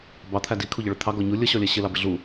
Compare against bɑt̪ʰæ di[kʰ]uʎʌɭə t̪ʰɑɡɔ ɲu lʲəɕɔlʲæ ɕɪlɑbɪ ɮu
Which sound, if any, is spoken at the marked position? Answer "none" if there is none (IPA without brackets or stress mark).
kʰ